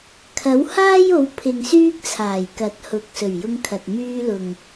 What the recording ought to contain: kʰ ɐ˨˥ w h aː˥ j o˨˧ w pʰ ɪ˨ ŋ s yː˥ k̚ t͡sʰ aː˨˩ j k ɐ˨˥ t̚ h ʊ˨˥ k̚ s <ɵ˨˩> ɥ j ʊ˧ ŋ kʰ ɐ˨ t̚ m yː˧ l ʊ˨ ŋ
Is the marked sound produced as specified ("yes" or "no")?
yes